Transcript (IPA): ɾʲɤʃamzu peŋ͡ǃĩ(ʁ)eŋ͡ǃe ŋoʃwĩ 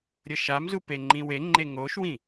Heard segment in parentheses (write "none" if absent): w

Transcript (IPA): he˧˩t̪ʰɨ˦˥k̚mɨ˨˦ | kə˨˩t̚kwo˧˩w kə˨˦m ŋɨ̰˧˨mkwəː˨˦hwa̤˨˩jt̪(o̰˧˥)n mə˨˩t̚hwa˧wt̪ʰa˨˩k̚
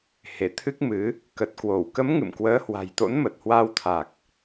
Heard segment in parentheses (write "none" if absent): o̰˧˥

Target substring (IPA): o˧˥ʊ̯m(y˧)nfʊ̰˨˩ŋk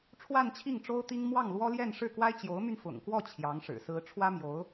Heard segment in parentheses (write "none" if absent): y˧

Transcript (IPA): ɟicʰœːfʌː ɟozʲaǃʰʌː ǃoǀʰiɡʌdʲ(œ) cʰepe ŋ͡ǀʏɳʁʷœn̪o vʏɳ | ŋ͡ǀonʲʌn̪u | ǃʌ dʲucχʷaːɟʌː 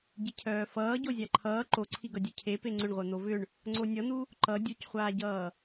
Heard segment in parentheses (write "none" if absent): œ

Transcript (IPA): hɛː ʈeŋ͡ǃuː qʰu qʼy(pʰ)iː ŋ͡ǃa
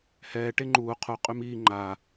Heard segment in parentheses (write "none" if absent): m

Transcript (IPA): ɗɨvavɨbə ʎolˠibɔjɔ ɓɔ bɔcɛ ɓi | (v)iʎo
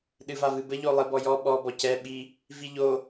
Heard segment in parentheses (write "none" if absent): v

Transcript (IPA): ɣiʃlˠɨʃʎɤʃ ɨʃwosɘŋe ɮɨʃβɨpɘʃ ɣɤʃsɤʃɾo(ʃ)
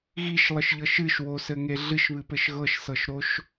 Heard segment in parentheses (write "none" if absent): ʃ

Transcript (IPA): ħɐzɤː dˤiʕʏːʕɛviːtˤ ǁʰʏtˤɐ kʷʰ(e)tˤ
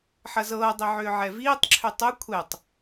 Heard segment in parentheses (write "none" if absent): ɛ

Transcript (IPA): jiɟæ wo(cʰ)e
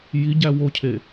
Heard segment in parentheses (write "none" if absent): cʰ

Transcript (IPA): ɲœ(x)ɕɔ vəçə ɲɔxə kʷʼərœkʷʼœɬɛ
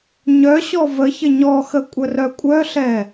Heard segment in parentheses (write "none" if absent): none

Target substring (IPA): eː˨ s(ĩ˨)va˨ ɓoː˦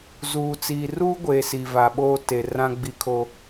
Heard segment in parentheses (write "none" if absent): i˨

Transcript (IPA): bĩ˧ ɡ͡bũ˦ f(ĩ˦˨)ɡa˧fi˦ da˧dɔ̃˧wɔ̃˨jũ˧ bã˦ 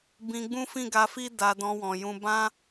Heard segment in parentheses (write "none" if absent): ĩ˦˨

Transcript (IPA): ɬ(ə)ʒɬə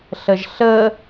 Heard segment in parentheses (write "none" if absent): ə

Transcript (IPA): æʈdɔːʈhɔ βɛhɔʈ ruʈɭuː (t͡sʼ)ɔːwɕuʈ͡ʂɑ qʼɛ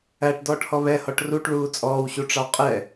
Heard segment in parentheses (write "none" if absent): t͡sʼ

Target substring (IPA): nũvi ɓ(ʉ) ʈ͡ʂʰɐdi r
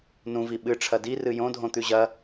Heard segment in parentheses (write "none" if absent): ɨ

